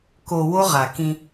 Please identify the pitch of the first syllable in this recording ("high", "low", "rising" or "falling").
low